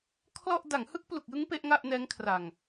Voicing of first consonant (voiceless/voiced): voiceless